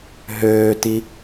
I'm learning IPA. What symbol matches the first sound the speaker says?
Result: ɦ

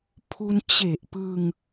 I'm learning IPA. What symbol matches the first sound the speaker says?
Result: pʰ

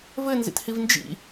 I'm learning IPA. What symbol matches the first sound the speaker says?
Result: v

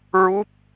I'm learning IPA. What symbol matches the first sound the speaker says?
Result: ɹ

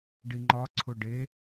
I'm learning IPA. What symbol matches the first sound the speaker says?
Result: ɖ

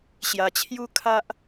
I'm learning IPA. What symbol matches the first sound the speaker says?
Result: ɕ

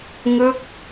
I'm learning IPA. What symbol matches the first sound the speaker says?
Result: ŋ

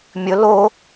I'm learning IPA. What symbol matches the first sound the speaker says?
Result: mʲ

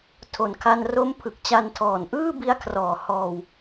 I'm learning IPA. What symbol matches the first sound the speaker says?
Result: tʰ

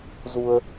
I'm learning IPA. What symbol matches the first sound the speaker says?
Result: z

